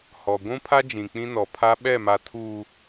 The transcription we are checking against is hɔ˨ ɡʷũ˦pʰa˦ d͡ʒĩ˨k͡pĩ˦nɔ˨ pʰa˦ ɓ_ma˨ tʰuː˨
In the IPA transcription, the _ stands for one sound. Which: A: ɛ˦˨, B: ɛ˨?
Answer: A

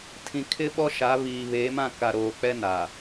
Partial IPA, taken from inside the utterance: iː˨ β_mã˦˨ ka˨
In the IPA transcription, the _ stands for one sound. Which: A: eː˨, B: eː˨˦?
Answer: B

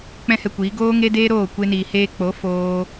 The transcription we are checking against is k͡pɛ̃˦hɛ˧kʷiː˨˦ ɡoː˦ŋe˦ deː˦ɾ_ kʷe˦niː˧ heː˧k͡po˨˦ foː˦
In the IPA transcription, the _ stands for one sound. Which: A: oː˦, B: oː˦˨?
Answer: B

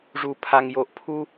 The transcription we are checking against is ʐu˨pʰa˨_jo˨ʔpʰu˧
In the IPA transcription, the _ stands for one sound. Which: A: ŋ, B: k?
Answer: A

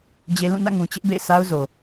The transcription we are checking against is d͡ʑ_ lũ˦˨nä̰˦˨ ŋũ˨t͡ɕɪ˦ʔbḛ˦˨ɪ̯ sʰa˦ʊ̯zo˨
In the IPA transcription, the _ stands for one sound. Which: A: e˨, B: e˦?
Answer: B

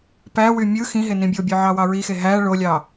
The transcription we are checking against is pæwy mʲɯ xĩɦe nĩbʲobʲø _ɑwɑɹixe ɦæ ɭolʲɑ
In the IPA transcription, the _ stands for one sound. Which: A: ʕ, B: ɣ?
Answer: A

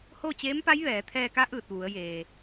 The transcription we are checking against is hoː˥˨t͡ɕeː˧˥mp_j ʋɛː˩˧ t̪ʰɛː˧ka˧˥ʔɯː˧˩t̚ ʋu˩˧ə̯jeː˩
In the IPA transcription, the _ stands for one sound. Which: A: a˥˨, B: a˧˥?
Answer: B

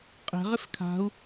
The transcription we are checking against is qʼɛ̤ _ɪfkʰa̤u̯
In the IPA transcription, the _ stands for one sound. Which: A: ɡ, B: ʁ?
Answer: B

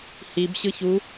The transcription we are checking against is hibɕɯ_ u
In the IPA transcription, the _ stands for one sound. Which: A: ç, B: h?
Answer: A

